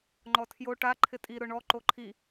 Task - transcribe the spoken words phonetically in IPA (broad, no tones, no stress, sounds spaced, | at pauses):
ŋ͡ǃ ɔ tʰ j o ʈ a ǃʰ ɪ tʼ i ɾ ʊ ɳ ɔ ǃ o ǃʰ i